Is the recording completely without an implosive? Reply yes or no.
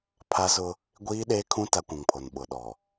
no